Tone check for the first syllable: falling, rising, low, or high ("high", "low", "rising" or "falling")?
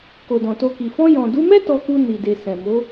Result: low